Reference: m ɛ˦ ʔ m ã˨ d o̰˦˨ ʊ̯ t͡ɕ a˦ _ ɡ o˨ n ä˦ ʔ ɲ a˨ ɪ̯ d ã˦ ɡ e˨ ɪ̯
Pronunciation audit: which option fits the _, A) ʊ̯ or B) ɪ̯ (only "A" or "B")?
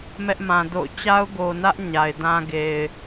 A